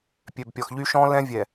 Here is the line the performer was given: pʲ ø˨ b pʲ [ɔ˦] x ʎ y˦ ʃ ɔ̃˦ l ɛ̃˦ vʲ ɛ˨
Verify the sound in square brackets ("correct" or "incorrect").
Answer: incorrect